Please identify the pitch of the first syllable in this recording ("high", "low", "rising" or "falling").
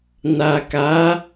low